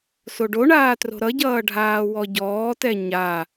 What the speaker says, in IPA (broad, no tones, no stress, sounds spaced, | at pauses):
s o ɖ o ɳ aː t r o̤ ɾ ʌ ɟ ʌː ɖʱ aː w ɔ ɟ ɔː t ɛ ɲ a